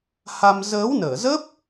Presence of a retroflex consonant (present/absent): absent